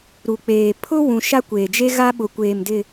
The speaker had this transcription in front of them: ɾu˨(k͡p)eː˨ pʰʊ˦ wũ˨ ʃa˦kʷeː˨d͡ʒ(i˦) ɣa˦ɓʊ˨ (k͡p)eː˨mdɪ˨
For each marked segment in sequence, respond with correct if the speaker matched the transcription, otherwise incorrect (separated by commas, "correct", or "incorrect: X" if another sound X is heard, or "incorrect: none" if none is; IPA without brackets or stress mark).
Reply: correct, incorrect: e˦, incorrect: kʷ